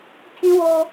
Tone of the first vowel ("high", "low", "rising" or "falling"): high